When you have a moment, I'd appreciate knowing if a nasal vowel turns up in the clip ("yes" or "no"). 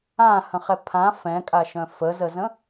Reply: yes